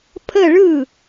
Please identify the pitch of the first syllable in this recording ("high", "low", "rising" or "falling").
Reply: falling